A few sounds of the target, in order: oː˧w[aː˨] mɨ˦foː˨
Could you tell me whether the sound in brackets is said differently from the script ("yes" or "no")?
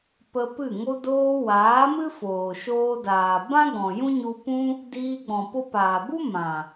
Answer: yes